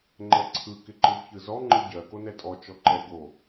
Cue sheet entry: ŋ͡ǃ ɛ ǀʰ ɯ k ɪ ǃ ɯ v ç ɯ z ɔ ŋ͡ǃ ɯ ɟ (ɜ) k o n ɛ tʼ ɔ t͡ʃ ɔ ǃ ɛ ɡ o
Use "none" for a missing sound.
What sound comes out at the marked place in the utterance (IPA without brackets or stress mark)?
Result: ɜ